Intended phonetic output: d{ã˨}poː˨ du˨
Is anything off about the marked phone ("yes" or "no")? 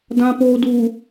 no